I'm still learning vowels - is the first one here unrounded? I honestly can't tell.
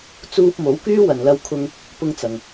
no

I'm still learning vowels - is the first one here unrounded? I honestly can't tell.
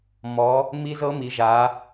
no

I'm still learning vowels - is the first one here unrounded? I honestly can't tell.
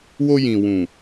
no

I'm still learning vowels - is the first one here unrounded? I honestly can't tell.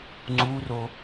no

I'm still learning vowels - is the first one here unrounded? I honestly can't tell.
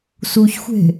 no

